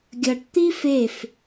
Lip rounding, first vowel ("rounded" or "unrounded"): unrounded